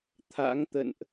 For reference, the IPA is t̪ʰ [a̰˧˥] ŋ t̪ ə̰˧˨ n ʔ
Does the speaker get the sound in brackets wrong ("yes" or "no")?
no